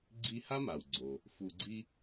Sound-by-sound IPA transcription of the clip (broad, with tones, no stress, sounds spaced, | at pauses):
ɡ͡ǀ i˦ h a˥ m a˩ w ɡ͡ǀ o˩ | f u˨ ɡ͡ǀ i˦